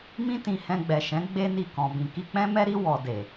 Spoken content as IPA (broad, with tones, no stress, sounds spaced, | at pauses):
m ĩ˦ t ĩ˧ h ɛ̃˧ ɡ͡b ɛ˨ ʃ ɛ̃˨˦ ɡ͡b e˦ n i˦˨ k ɔ̃˨ b ĩ˨ k i˧ k͡p ɛ̃˦ m ɛ˦ ɾ i˦ w ɔ˧ d e˨